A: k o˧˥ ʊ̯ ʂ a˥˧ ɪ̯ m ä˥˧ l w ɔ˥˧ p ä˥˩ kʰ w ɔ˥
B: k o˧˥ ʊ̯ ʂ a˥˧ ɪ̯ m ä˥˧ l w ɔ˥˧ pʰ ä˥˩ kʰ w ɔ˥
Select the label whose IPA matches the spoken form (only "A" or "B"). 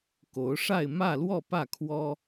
A